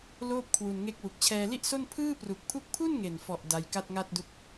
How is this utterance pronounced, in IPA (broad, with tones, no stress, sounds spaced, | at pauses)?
l oː˥˩ p̚ kʰ w u˧ n ŋ e˦˥ k̚ w u˨˩ k̚ t͡ɕʰ ɛː˧ l i˥˩ ʔ s o˥˩ n pʰ ɯː˥˩ p r u˨˩ k̚ pʰ u˦˥ k̚ pʰ u˥˩ n ŋ e˨˩ n f ɔ˨˩ ʔ d a˧ j k a˥˩ t̚ ŋ a˥˩ t̚ d u˦˥ k̚